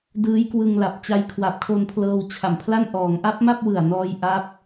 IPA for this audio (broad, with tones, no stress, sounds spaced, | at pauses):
d ɯː˦˥ j k w ɯ˧ ŋ l a˨˩ p̚ t͡ɕ a˧ j kʰ w a˨˩ p̚ kʰ o˧ n pʰ l ɤː˧ w t͡ɕʰ a˨˩ m pʰ l a˥˩ n ʔ ɔː˩˦ ŋ ʔ a˦˥ p̚ m a˥˩ p̚ w ɯ˨˩ a̯ n ɔː˧ j ʔ a˦˥ p̚